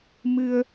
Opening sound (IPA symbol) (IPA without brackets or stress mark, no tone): m